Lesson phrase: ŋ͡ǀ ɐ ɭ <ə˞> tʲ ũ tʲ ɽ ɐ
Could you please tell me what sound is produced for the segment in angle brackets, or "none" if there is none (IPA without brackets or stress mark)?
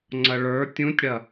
ə˞